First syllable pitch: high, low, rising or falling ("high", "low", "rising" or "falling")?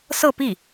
falling